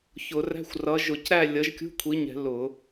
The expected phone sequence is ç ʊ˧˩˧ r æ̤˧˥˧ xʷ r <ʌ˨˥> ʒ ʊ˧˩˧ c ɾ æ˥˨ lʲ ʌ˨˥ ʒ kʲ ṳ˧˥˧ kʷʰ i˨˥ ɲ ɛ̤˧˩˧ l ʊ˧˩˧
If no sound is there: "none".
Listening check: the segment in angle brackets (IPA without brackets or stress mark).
ʌ˨˥